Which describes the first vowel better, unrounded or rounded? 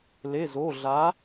unrounded